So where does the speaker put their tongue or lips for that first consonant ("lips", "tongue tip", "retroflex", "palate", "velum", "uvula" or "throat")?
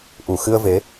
throat